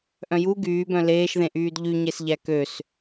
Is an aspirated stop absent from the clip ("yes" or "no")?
yes